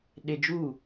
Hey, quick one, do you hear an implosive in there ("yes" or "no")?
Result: yes